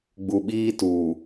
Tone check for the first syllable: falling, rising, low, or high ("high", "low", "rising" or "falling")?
low